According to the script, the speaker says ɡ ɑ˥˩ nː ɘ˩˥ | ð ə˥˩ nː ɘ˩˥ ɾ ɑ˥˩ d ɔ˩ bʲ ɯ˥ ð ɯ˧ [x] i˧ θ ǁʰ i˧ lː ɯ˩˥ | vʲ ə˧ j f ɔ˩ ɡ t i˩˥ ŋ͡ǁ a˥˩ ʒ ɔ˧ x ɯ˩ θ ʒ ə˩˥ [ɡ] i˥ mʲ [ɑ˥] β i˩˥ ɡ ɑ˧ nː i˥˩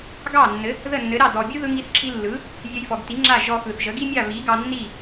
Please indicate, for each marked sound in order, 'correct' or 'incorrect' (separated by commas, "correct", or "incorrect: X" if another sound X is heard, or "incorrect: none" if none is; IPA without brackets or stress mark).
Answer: incorrect: ŋ, correct, incorrect: ɑ˥˩